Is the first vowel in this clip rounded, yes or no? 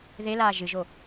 no